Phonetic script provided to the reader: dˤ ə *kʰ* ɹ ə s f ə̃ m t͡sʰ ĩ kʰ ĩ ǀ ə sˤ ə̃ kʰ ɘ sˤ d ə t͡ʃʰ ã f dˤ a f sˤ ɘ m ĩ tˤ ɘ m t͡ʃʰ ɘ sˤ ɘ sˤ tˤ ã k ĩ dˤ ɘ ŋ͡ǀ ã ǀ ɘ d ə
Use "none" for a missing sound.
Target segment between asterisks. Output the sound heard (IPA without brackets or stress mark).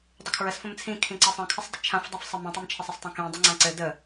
kʰ